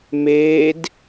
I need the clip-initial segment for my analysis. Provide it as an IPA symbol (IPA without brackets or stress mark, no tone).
m